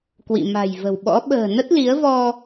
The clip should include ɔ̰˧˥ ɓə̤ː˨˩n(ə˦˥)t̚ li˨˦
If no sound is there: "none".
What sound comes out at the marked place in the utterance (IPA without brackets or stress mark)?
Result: ə˦˥